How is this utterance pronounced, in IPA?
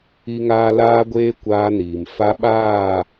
i˦ ŋ aː˦ l aː˦ ɡʷ eː˦ kʷ aː˦ n iː˨ m f a˦ ɓ aː˦˨

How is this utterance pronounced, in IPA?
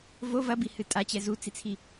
v o v ɐ b i h ɨ tʼ a t͡ɕ ɛ z u t͡s i t͡sʰ i

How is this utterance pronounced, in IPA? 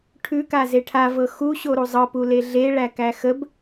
ʈʰ ʉ k a z e ʈʰ a v ɤ x u ɕ o ɾ u zˤ ɤ p u l e ɮ e ɭ æ k æ x ə b

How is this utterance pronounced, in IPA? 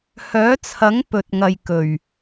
h œː˨˥ t͡sʰ ɐ˨˥ ŋ p ɵ˨ t̚ ŋ ɐ˨ j k ɵ˨˩ ɥ

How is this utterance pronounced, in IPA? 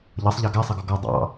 ʎ ʌ sˤ ʎ ɑ ɡ æ sˤ ʌ ɡ ɔ ɡ ɔ dˤ ɑ̰

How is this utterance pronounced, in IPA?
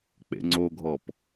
k͡p ḛ ŋ͡ǀ o ɡʱ ɔ p

